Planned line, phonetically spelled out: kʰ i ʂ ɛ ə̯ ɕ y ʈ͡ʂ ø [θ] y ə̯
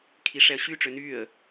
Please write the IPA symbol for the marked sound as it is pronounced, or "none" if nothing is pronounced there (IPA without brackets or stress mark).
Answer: n